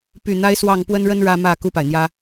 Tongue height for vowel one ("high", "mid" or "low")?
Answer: high